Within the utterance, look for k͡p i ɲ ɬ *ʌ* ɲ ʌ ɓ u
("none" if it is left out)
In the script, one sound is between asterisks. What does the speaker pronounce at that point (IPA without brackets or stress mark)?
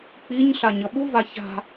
a